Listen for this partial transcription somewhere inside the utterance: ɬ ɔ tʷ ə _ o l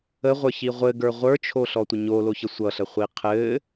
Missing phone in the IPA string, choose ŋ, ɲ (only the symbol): ɲ